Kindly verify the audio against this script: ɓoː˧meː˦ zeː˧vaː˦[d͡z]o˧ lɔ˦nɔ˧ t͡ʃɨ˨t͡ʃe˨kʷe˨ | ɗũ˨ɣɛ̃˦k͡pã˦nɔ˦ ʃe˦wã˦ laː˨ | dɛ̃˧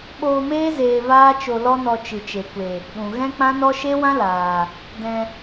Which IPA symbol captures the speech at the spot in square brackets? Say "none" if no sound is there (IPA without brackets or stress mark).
t͡ʃ